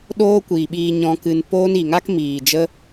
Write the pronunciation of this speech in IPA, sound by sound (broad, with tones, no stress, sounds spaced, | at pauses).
ɗ oː˦ kʷ iː˨ ɓ iː˧ ɲ ɔ̃˧ k ɨ˧ n p oː˦ n i˨ ŋ a˦ k m iː˨ d͡ʒ ə˦